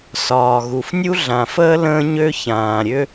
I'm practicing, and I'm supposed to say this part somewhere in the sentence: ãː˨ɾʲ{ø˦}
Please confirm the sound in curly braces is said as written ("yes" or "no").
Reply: yes